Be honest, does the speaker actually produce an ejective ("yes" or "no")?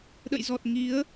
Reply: no